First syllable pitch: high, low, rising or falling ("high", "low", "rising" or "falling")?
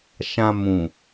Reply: low